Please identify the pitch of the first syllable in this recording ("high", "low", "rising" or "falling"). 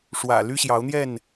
low